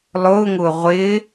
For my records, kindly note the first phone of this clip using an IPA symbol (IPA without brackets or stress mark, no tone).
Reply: lˠ